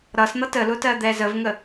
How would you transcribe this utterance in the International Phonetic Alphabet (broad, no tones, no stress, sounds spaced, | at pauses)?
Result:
ɾ ʌ s n̪ ʌ t ə l ʊ t ɜ d̪ ɛ z ə v ŋ ə